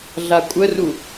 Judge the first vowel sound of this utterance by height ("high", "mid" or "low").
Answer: low